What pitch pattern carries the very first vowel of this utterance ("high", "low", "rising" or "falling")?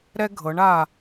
high